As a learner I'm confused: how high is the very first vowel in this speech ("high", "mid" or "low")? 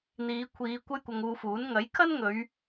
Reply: high